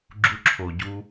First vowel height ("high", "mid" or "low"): high